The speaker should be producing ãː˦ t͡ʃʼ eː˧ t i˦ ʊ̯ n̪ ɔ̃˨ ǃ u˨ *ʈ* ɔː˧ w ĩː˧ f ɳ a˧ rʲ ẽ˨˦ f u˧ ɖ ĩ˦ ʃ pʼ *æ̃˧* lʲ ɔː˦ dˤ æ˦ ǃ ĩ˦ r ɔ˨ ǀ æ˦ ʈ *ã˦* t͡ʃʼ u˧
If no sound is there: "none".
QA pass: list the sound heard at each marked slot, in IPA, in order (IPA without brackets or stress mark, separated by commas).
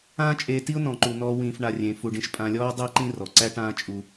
n̪, ã˧, ãː˦